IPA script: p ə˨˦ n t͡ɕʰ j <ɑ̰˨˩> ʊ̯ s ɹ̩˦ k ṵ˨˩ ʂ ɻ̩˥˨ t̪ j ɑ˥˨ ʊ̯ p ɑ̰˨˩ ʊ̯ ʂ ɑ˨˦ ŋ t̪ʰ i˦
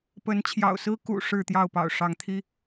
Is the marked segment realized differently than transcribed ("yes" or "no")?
no